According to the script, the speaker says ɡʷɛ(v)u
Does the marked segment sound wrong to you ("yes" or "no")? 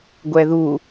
yes